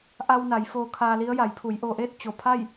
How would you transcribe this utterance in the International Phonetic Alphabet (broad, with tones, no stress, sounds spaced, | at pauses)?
ʔ a˧ w n a˩˧ j f oː˧ kʰ aː˧ l i˧˥ ə̯ j a˩˧ j pʰ u˩˧ j ʔ oː˧ ʔ eː˥˨ t̚ t͡ɕ o˧˩ pʰ a˥˨ j